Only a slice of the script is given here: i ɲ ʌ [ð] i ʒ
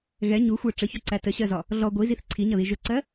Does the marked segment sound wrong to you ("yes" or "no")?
no